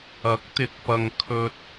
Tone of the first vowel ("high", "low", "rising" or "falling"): rising